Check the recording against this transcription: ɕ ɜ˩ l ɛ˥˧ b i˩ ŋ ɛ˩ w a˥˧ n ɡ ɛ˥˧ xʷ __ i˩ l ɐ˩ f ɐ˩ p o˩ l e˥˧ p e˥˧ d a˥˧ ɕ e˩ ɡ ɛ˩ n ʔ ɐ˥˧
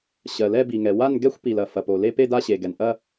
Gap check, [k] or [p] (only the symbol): p